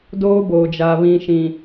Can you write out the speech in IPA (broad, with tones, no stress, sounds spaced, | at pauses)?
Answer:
d oː˦ b oː˨ d͡ʒ a˨ β ĩ˨ ʃ ĩ˨